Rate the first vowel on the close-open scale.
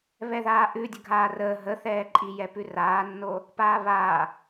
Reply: mid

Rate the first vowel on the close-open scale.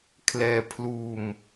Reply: mid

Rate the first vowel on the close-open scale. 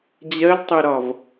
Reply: mid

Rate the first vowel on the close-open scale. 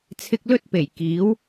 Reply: close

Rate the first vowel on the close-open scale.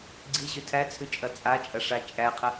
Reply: close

